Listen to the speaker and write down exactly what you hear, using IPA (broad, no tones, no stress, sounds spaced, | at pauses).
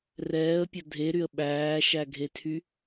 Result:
r ɛː ə̯ pʲ ɐ dʱ e ɾ y ə̯ ɓ æː ʃ æ ɡʱ e tʰ y